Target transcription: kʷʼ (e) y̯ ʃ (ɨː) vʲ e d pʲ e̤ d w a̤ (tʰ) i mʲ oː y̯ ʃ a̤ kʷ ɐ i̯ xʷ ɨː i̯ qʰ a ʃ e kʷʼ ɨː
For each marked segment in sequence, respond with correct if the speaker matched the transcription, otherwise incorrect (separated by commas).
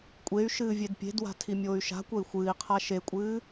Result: correct, correct, correct